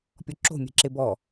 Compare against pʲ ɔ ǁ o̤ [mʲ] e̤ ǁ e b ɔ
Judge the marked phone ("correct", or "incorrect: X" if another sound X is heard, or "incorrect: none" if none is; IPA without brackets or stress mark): correct